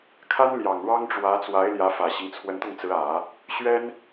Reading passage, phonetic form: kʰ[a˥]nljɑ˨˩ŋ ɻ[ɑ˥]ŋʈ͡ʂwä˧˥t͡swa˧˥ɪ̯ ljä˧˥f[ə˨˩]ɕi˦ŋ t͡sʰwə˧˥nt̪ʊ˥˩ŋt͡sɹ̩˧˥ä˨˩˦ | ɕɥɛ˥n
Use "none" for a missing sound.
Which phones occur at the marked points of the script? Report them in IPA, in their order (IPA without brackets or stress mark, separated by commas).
a˥, ɑ˥, ä˨˩